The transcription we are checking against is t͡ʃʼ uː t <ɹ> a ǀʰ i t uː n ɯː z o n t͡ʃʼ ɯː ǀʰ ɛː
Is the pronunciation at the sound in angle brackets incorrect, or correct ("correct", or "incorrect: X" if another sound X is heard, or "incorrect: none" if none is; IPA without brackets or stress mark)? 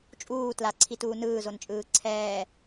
incorrect: l